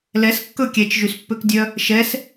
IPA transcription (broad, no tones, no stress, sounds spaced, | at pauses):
l ɛ s kː ɵ kʲ ɛ t͡ʃ ʒ y s pː ø k dʲ œ | ʃ ɛ s